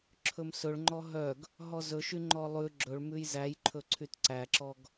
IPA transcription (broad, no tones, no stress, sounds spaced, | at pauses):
ǁʰ ɵ m s ɵ ɭ ŋ͡ǃ ɔ ɦ œ ɡ | ɦ ɔ z ɵ ʃ y ŋ͡ǃ ɔ lˠ ʉ ɡ͡ǁ ɵ ɭ m ʉ j z æ j ǃʰ ɵ ǀʰ y t ǀ æ ǁ ɔ ɡ